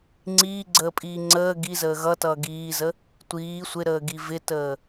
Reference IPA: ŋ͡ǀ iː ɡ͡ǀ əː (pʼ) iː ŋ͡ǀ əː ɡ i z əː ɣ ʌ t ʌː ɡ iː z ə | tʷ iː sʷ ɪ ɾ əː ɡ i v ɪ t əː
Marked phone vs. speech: correct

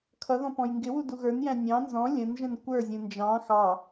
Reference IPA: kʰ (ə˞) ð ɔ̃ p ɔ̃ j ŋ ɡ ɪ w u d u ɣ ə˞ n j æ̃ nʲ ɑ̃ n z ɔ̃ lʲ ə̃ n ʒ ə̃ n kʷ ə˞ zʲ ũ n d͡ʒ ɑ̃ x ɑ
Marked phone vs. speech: incorrect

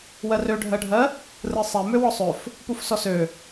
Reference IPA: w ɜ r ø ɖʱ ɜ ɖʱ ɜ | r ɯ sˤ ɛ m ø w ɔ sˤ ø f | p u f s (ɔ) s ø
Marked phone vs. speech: correct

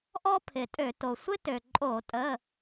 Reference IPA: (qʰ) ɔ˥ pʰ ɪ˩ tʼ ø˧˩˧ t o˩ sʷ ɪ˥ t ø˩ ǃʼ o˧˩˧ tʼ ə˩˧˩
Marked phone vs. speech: incorrect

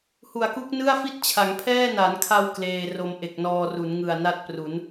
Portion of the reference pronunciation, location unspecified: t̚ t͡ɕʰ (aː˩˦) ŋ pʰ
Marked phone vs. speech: incorrect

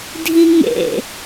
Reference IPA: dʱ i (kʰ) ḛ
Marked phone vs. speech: incorrect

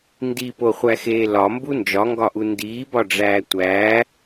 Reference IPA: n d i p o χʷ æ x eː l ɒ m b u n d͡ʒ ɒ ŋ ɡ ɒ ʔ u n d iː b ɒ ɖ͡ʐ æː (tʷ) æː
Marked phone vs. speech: correct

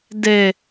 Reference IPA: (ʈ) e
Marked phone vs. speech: incorrect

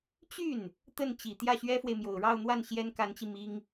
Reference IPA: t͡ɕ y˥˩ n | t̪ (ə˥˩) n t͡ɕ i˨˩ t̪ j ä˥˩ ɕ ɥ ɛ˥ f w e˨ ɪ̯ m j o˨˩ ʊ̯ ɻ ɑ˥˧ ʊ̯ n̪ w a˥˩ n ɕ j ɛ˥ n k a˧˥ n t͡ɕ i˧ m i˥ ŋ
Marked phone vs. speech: correct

